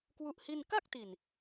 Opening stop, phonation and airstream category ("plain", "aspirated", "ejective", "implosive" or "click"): plain